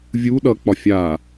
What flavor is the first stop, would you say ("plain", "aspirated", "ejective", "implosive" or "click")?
implosive